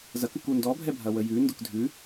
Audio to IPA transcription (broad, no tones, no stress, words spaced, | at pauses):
zɐkʉku ndɔbʱɛbʱɐ wəjʉ ndʊkdʱʉ